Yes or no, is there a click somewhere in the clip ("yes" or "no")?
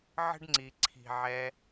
yes